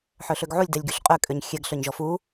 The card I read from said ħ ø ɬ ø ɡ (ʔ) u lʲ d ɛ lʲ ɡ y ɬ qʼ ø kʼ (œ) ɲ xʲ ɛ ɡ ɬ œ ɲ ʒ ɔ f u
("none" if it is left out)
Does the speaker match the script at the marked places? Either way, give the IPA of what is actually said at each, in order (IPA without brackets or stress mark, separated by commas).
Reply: ʕ, ø